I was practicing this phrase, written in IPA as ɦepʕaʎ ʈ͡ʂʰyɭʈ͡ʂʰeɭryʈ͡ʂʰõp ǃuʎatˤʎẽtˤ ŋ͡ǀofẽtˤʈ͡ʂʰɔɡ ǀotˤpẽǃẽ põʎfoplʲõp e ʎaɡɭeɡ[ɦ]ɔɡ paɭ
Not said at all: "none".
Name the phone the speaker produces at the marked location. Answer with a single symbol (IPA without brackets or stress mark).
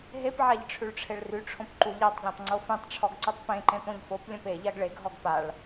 ɦ